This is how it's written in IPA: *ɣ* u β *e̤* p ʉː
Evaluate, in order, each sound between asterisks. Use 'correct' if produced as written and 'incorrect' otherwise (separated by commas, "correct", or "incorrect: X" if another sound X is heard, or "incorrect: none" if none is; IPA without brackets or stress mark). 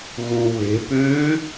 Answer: correct, correct